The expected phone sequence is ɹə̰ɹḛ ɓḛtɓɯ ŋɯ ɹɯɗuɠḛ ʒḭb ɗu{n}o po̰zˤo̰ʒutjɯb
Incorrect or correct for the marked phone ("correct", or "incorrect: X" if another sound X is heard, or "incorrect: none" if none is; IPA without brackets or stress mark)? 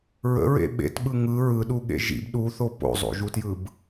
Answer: incorrect: θ